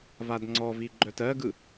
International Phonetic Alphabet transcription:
vadŋ͡ǀɔvi ɡ͡ǃœtɜɡɯ

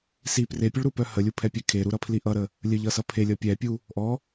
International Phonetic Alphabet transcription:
si prepʲʊɭɾupœ həlʲupʰɛpʲɛ kʰeɾuɾʌpʰli ʔʌɾə | lʲəʎʌsʌ pʰelʲʌ pʲɛpʲu | ʔɔ

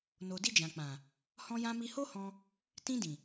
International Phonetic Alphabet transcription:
no˨di˧d͡ʒã˨k͡pã˨ | hɔ̃˧ jã˧mi˧ho˦hɔ̃˧ | tĩ˧dĩ˨

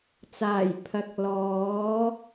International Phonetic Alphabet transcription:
t͡saː˨˩j pʰɐ˨k̚lɔː˨˥

